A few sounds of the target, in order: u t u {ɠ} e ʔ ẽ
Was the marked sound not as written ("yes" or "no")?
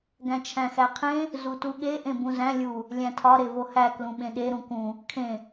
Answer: no